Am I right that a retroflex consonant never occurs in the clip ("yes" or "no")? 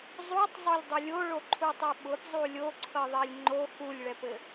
no